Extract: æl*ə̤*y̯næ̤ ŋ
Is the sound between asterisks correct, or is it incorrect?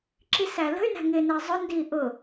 correct